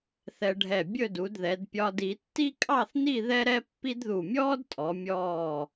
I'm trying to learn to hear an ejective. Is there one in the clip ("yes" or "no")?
yes